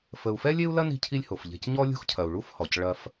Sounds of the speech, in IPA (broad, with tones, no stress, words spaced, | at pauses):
fə˨u̯fɛ˥lʲe˥u̯lɐ˥ ni̤˦cʰi˦lʲho˩f ʎe̤˨c ɲɔ˦ lʲṳ˦xcʰɐ˩u̯ ɭu˦fhɔ˩c ɭɐ˨f